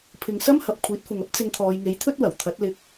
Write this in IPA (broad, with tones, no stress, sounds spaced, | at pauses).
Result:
pʰ ɪ˨ ŋ s ɐ˥ m h ɐ˨ p̚ kʷʰ iː˨˥ t̚ f ʊ˨ ŋ ɐ˥ p̚ t͡s ɪ˧ ŋ t̪ʰ ɔː˨˧ j ŋ e˨˥ j t̪ʰ ɵ˥ t̚ w ɐ˨˩ w t̪ʰ ɐ˨˥ t̚ l ɪ˧ k̚